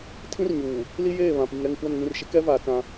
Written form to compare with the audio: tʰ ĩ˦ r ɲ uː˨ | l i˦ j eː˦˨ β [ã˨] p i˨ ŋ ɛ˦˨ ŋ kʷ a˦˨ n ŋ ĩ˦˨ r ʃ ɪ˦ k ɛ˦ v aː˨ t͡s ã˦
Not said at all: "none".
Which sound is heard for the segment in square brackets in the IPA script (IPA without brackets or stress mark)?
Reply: ã˨